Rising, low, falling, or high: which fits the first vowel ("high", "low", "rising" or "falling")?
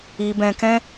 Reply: low